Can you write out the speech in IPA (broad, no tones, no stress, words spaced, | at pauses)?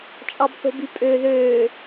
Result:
t͡ʃʼɑbθo̤bypʼø ðøː